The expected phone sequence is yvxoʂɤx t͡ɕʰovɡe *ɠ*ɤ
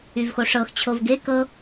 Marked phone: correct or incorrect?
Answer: incorrect: k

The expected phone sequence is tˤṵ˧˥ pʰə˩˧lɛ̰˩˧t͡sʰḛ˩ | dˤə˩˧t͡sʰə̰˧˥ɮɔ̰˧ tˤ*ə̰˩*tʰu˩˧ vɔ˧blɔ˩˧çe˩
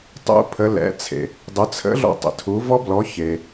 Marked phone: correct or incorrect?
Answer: correct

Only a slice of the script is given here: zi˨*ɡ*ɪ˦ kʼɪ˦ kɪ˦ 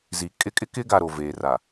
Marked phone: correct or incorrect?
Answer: incorrect: kʼ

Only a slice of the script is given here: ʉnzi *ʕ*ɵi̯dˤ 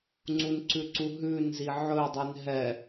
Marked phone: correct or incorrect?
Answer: correct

